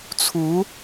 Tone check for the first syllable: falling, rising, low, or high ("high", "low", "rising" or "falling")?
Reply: rising